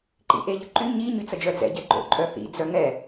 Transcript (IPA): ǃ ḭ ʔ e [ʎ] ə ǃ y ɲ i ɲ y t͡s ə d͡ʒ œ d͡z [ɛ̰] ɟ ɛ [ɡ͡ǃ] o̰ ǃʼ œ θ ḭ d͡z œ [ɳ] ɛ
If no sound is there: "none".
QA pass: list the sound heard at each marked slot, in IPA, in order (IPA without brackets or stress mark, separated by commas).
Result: ʎ, ɛ̰, ɡ͡ǃ, ŋ